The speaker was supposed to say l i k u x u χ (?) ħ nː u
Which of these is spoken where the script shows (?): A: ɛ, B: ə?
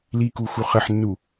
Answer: B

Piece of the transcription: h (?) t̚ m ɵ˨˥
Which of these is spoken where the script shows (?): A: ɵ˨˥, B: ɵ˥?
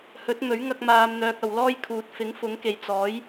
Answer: A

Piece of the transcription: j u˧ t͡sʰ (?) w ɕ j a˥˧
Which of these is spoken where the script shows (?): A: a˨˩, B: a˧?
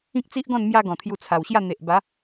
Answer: A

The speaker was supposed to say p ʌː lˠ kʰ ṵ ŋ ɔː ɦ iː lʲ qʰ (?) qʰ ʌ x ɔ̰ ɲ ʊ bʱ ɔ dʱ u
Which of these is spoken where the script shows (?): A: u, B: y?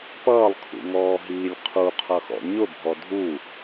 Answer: A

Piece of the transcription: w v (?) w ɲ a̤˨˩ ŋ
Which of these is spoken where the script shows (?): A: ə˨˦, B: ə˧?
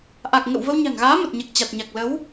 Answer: B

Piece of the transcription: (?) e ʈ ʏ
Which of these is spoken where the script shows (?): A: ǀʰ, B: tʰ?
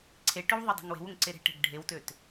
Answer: A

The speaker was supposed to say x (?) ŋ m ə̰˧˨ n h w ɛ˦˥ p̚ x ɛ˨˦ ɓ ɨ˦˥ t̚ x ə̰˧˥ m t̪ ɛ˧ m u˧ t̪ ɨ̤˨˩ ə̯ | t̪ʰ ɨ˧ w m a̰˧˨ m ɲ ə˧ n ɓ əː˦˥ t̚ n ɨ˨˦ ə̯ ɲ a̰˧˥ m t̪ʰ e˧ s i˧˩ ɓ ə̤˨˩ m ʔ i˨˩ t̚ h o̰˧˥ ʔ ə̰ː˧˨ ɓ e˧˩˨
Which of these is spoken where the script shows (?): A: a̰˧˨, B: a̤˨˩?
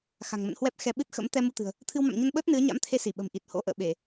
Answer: B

